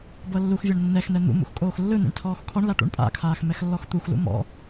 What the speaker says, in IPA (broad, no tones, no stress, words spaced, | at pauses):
bɤlːuxvʲɤɳ nːɛxnɛ n̪ṵ mṵxkʼoːxlːɯnḛɳ tʰɔːxkʰɔɳla ʈṵɳpʼa̰kʰaːx mɛxlːɔxt̪uxlṵ mɔ̰